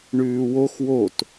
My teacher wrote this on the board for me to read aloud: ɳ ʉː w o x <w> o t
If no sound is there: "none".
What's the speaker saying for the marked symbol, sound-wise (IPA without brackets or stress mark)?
w